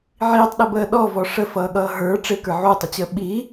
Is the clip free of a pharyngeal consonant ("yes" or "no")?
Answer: no